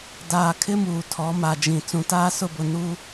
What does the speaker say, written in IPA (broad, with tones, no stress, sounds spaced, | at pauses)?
d aː˨ kʰ ɪ˦ m uː˨ tʰ ɔ˨˦ m a˨ d͡ʒ ĩ˨ t͡s ũ˨ t aː˦ s ʊ˦˨ b ʊ˨ n uː˦